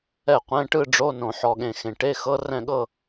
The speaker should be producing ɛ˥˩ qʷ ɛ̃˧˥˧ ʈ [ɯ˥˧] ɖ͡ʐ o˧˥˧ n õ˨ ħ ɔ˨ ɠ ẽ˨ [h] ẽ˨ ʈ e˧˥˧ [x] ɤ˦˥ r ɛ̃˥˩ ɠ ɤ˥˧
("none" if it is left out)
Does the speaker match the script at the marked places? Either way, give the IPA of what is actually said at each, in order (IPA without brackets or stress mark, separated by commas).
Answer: ɯ˥˧, x, x